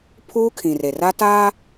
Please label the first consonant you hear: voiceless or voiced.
voiceless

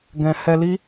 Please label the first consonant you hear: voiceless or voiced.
voiced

